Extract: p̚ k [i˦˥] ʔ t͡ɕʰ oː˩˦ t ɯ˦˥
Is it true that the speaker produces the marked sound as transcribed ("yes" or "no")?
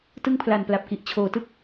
no